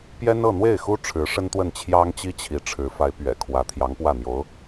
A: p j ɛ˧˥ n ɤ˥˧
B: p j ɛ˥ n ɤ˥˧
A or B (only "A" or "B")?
B